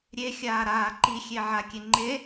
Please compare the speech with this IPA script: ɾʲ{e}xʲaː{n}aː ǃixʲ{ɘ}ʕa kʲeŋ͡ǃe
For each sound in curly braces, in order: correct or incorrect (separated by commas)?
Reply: correct, incorrect, incorrect